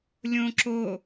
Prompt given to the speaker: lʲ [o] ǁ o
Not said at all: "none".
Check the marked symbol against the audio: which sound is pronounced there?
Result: õ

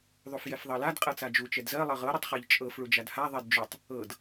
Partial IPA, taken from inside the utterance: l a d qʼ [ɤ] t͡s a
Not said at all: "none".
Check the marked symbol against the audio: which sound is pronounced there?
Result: ɤ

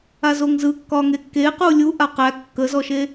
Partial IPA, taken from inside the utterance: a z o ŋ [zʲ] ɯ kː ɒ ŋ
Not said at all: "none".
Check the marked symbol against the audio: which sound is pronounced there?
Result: z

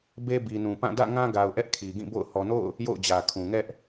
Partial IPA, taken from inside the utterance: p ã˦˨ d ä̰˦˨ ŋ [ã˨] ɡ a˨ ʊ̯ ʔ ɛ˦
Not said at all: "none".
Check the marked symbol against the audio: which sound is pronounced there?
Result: ã˦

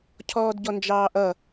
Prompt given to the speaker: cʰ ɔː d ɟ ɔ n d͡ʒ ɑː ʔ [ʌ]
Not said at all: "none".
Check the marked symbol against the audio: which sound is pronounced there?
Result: ʌ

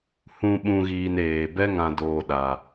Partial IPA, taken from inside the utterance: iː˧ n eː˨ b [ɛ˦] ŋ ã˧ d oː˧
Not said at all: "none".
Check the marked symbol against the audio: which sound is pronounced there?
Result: ɛ˦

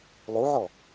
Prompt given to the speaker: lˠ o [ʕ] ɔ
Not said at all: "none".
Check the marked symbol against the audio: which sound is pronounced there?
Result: ʕ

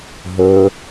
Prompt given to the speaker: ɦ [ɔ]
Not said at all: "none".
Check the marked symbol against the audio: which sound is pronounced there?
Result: ɵ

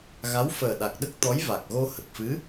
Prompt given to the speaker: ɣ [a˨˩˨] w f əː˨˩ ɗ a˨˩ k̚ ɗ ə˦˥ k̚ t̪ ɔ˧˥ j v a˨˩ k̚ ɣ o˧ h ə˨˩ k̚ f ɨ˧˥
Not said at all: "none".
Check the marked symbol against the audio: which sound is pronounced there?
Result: a˧˥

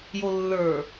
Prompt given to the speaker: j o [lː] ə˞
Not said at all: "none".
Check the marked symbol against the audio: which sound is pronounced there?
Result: lː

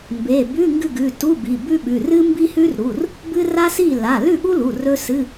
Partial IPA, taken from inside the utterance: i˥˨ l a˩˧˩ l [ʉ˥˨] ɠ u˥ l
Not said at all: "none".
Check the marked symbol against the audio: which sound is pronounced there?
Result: ʉ˥˨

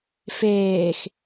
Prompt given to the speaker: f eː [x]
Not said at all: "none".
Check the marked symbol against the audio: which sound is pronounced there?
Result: x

